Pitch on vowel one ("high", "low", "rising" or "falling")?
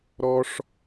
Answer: high